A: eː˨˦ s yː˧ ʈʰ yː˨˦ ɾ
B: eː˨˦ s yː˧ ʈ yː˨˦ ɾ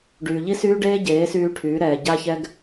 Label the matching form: A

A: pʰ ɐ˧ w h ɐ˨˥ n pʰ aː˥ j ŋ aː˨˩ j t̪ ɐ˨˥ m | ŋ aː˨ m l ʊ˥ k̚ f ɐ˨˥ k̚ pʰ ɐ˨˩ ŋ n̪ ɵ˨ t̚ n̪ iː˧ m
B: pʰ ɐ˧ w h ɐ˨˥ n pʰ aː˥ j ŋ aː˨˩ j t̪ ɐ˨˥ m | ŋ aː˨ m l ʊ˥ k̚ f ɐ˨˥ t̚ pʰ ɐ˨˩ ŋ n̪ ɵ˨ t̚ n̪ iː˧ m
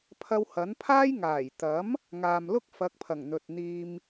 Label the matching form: A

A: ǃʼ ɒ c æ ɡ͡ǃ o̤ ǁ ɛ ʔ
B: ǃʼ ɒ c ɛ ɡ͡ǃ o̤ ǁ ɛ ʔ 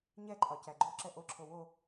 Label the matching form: A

